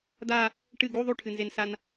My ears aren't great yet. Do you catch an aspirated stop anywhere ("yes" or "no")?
yes